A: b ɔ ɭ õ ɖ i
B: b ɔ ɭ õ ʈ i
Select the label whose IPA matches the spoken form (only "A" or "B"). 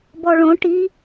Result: B